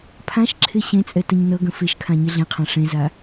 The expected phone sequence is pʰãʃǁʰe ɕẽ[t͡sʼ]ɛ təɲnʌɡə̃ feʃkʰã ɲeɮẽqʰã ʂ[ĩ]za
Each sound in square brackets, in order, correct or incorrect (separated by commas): correct, incorrect